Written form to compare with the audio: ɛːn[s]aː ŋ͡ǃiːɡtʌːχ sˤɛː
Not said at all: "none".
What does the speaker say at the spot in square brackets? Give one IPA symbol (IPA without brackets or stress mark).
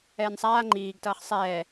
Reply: sˤ